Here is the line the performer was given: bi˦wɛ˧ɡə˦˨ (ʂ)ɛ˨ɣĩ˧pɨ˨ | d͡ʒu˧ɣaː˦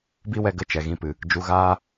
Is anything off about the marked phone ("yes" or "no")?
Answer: yes